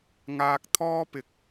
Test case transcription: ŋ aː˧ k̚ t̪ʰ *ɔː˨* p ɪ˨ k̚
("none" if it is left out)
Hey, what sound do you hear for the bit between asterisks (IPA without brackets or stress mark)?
ɔː˥